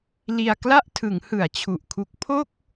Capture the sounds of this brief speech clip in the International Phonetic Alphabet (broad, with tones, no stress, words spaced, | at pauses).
li˧a̯ kla˥˩ʔtʰɯ˩˦ŋ hɯ˨˩a̯t͡ɕʰu˨˩ʔkʰu˦˥k̚ pʰo˥˩k̚